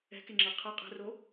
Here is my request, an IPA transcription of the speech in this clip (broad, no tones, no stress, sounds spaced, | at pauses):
ɛ̤ k e ŋ͡ǁ ɤ qʰ ɛ qʼ ɛ̤ r o